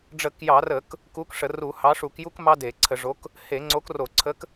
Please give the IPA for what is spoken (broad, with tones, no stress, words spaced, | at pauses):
ɖ͡ʐə˧˩˧kjɑ˧˩˧rə˧˩˧k | ku˨˥k ʂə˧˩˧ru˧˩˧hɑ˨˥ ʂu˧˩˧kju˦kmɑ˦ de˧˩˧ǀʰə˧˩˧ʐo˨˥k | he˧˩˧ŋ͡ǀo˨˥kro˧˩˧ ǀʰə˨˥k